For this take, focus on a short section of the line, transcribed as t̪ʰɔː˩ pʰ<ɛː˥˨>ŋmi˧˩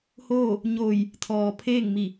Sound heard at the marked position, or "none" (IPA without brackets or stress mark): eː˥˨